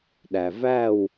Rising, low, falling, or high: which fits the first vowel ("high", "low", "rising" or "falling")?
low